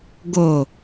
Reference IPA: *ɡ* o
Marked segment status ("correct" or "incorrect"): correct